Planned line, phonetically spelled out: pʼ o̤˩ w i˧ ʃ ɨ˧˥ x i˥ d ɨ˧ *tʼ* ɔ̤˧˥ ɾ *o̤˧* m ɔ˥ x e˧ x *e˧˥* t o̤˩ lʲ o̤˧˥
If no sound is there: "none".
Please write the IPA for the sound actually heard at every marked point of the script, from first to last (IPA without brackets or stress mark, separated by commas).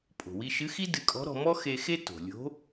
kʼ, ɔ̤˧, e˥